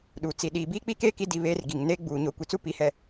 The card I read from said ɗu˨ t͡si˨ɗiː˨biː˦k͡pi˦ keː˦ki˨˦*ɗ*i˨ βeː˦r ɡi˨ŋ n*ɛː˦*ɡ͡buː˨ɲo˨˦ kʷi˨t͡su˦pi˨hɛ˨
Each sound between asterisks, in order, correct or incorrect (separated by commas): incorrect, incorrect